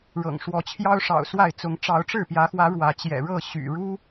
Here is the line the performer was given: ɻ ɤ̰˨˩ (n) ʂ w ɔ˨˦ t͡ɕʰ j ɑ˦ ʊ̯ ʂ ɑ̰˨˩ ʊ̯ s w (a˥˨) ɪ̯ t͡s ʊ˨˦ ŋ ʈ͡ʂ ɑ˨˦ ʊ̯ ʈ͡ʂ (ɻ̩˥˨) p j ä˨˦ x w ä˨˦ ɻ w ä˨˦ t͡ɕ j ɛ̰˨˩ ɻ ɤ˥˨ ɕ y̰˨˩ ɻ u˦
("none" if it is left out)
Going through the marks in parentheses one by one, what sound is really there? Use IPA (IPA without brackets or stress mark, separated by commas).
ŋ, a˥˨, ɻ̩˥˨